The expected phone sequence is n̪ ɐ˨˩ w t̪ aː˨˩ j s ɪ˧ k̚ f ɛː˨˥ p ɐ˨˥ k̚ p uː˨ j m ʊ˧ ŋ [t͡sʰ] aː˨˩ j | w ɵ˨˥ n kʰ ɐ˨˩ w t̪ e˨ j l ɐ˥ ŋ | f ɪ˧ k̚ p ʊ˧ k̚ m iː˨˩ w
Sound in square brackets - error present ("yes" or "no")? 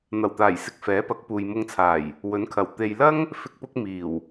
no